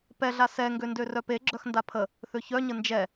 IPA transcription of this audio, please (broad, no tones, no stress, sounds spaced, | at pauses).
p ɛ ɮ a s ɛ ŋ ɡ ø n d ø r œ p e ɡ͡ǁ œ x n d a pʰ ə | θ ø ç œ ɲ ə n d͡ʒ ɛ